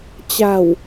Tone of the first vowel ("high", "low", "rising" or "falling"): low